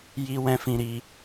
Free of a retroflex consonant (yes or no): yes